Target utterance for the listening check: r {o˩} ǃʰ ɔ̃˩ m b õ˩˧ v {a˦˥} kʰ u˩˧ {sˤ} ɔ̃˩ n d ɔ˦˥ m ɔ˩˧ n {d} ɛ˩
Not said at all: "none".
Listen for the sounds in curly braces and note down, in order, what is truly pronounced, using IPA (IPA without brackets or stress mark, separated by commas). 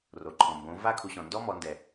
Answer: o˩, a˦˥, ɕ, d